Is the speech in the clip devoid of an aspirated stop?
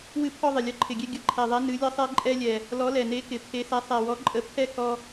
no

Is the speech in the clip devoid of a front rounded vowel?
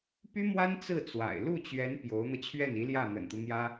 no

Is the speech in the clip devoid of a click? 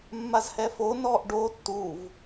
yes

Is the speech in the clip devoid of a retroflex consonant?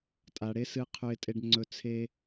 no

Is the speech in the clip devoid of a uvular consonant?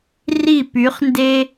no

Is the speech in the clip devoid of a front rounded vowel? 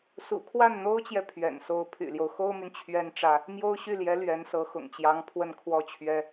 no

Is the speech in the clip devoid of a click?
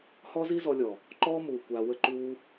no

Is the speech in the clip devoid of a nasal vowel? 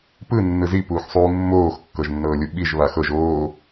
yes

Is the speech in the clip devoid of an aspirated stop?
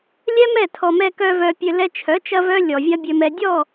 no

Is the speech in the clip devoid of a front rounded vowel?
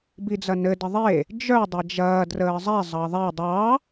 no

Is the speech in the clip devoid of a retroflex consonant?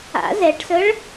no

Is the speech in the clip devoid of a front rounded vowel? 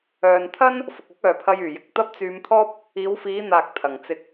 no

